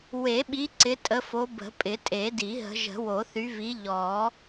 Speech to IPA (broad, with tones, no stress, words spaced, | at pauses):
we˨˩˦ɓi˨˦ ǀɪ˨˦tʼə˨˦fo˨˦ bə̤˨˩˦pʼɪ˨˩˦tʼe˨˩˦ di˨˩˦ ɦə̤˨˦ ʒə̤˨˩˦wo˨˩˦θy˨˦vi˨˦ ʎɔ˨˩˦